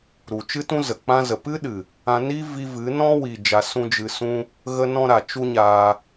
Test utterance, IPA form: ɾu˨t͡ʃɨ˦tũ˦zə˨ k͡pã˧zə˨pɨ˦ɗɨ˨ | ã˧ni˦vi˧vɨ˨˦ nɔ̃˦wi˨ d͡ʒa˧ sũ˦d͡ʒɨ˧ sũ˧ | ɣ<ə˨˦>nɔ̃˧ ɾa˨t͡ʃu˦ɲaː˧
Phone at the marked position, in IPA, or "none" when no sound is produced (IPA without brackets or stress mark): ə˧